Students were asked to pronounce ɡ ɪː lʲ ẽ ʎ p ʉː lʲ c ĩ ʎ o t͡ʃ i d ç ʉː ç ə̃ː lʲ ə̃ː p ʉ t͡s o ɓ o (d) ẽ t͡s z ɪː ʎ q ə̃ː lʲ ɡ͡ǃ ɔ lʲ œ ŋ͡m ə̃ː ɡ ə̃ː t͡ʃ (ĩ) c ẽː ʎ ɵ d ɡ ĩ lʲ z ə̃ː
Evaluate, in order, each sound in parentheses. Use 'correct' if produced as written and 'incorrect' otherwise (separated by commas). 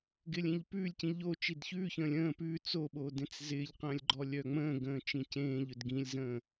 correct, correct